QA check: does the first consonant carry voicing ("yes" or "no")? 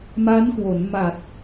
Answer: yes